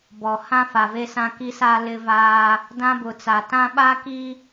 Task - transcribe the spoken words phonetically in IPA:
b ɔ˨ h ã˦ f a˨ v e˦ s ã˦ k i˦ s a˦ l ɪ˦ v aː˦ | d ã˦ b ʊ˨ t͡s a˨ t ã˦ ɓ a˦ k i˦

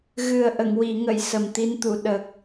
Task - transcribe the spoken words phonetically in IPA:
ɣ ɨ˨˩ ə̯ ʔ ə˨˩˨ ŋ w i˨˩˨ ŋ ə˨˩˨ j s ə˨˩ m t̪ i˧ n t̪ u˨˩˨ ɗ ə˨˩ k̚

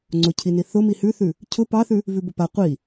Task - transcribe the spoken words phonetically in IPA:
ŋ͡ǀ ʊ cʰ i n i θ ʊ m i h ʉ θ ʉ | cʰ ʊ p ɑ θ ʉ | v ʉ b ʊ p a qʷ i

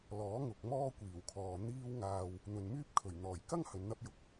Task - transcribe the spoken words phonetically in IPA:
l ɔː˨˥ ŋ ʊ˨ k̚ m ɔː˥ kʷ iː˨˩ w kʰ ɔː˨ n̪ iː˧ w ŋ aː˨ w | n̪ ɵ˨ n m yː˥ p̚ kʰ ɵ˨˩ ɥ n̪ ɔː˨˩ j k ɐ˥ ŋ h ɵ˨˧ n n̪ ɐ˥ p̚ j ʊ˨˥ k̚

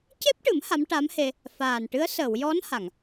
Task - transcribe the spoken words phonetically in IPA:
c e˦˥ p̚ ʈ ɨ˨˩˦ m h a˧˥ m ʈ a˧˥ m h e˧ | f aː˨˩ n ʈ ɨ˧˥ ə̯ s əː˨˩˨ w j ɔ˧˥ n h a˨˩˨ ŋ

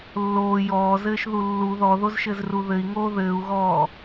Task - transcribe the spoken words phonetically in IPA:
lː oː j ɔː z ɘː ʃ ð u lː u ð ɔ ð o z ʃ ɘ z r u ð ɘ i̯ ŋ oː ð ɘː u̯ ɣ ɔː

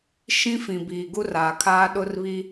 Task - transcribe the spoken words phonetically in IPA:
ʃ ĩ˦ f ĩ˨ b iː˨ ɡ u˦ r aː˨ kʰ aː˦ ɗ ʊ˦ r β iː˦

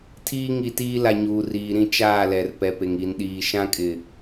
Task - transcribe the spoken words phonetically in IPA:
tʰ iː˦ ŋ i˨ t iː˦ l a˨ ɲ uː˨ r iː˨ ɾ ĩ˦ t͡ʃ aː˦˨ l ɛ˨ r p ɛ˨ p e˨ ŋ i˨ n ɗ iː˨ ʃ ã˦ kʼ ɪ˨

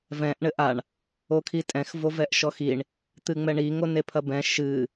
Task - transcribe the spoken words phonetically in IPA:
v ɛ̃ ʔ ɳ ɘ ʔ a ɳ | o kʰ i tʼ ɛ̃ x v o v ɛ ʔ ʃ ɔ x i ɳ | t̪ ɨ ŋ͡m ɛ ɳ i ŋ o n e pʰ ɐ b ɛ̃ ʃ ɨ

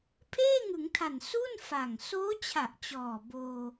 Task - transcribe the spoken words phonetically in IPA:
pʰ eː˥˩ ŋ ɯ˩˦ ŋ tʰ a˨˩ n s u˥˩ n f a˨˩ ŋ s oː˦˥ t͡ɕʰ a˨˩ ʔ t͡ɕ ɔː˨˩ b oː˧

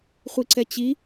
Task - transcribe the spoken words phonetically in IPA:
χʷ i ǀ ɛ t͡ɕ i

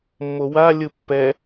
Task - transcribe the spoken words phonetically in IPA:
mː o w a lʲ ɯ pː ɛ

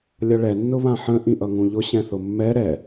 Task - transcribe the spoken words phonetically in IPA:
lʲ ʌ ɭ ɛ nː ʊ β ã ħ ə̃ ʔ ĩ ʔ ʌ ŋ ũ ʎ ʊ ɕ ɛ̃ θ ʊ mː ɛ ɾ ɛ

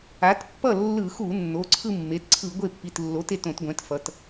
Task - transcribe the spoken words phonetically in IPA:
a˩˥ t pː ʌ˥˩ lː ɯ˧˩˧ x u˧˩˧ nː o˩˧˩ ǀʰ ɯ˥˧ mː e˩˧˩ t ǀʰ ɯ˧˩˧ ɡʷ e˥˩ pː i˩˧˩ t lː o˩˥ t e˥˩ t õ˧˩˧ t ɡʷ ɛ̃˩˥ t f ʌ˩˧˩ t

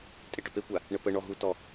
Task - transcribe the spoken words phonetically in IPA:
tʼ e ʈ œ p e kʷ a | ɳ ə p ə ɳ ɔ ɦ u t ɔ

